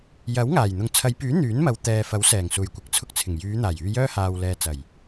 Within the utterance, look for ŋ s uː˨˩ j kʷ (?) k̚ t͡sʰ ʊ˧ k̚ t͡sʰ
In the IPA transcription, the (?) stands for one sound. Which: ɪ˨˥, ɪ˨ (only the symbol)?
ɪ˨˥